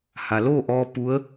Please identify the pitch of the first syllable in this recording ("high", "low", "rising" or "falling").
low